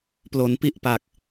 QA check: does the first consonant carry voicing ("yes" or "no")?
no